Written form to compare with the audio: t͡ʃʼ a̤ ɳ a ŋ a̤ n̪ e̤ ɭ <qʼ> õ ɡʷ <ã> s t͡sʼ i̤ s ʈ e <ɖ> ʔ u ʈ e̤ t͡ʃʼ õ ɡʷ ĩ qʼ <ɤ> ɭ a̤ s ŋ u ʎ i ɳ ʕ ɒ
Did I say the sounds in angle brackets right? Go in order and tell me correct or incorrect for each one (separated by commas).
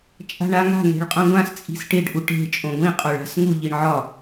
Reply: correct, correct, correct, incorrect